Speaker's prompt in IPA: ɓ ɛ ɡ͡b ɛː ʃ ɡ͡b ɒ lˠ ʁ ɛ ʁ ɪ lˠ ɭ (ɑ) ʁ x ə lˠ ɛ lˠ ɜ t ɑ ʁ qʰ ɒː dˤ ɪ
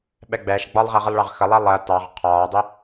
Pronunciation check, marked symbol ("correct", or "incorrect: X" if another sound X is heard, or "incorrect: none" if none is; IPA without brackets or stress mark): correct